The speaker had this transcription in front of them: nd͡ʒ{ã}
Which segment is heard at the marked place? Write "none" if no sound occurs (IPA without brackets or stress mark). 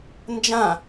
ã